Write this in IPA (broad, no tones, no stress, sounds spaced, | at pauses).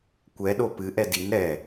kʷ ɛ ɗ o p ɨ ʔ ɛ d i n ɾ ɛ